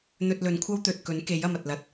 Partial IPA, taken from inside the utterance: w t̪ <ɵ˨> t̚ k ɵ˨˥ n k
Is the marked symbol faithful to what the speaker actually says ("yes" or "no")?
yes